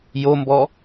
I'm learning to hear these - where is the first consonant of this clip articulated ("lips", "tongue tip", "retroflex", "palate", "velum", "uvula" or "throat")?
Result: palate